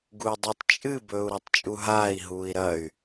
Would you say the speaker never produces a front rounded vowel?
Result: no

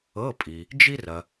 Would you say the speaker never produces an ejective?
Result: no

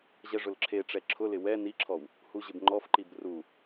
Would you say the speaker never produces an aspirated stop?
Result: no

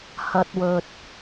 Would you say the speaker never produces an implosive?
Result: yes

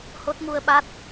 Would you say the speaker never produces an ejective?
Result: yes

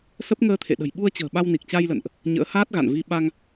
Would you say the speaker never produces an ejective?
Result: yes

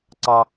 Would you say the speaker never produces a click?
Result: no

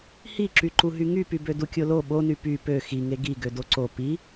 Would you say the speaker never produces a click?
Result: no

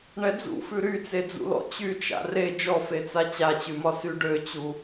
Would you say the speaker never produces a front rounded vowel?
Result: no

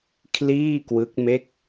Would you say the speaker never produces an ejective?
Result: yes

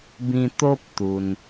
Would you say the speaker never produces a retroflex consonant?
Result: yes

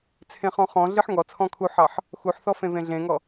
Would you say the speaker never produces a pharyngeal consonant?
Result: no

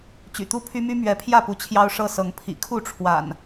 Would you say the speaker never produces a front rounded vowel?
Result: no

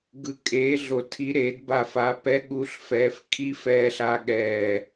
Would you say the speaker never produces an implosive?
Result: no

